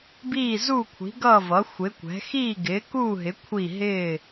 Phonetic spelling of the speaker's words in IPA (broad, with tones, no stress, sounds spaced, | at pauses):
b iː˥˨ z u˥˨ kʷʰ i̤˩˥ ɡ ʌː˥˨ v ʌ˩˥ xʷ ɪ˩˥ kʷ ɛ̤˩˥ x iː˥˨ ɡ ɪː˩˥ k uː˥˨ ɦ ɪ˩˥ kʷʰ i˥˨ ɦ ɪː˥˨